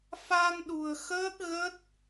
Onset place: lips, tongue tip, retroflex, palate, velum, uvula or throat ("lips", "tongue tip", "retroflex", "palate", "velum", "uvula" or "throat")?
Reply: lips